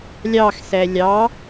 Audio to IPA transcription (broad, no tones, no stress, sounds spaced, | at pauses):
lʲ ɑ x s ɛ lʲ ɑ